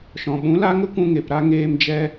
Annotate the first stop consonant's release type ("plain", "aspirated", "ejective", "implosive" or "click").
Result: implosive